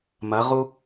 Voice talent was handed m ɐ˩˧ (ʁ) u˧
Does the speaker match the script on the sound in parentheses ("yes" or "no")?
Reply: yes